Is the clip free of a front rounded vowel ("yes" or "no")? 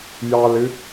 yes